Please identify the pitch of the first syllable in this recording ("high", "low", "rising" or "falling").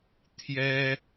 high